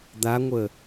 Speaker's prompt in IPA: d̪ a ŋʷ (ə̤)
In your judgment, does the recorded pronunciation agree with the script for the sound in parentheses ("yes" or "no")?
no